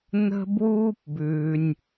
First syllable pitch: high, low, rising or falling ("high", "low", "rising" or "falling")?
high